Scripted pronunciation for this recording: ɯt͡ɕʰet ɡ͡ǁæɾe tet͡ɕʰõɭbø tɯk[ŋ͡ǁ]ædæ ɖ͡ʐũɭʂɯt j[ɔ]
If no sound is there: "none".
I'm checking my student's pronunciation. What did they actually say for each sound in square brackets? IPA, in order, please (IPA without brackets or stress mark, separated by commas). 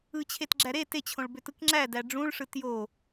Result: ŋ͡ǁ, o